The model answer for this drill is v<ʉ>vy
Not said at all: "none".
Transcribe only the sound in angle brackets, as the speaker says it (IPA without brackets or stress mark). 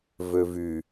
ø